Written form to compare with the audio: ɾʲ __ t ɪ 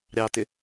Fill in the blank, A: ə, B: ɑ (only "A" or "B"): B